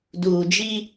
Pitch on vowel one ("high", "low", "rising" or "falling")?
low